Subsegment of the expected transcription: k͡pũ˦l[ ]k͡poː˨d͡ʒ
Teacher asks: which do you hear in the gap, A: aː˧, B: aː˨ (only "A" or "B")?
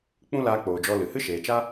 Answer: A